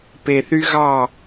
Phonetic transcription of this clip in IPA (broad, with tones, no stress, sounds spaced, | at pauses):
p e˨ θ y˦ ɣ ɑ˦˨